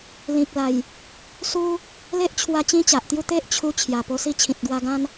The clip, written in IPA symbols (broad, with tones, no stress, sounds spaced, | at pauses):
l ĩ˨ k̚ l a˨˩ j | s u˦ | l e˦ ʔ t͡ɕʰ w a˧ t͡ɕ ĩ˦ t͡ɕ a˨ ʔ t̪ j u˥˧ t̪ e˦ ʔ t͡ɕʰ u˧ t͡ɕʰ j a˨˩ p o˧ s i˥˧ t͡ɕʰ ĩ˨ t̚ ɡ w a˧ ɡ ã˦ n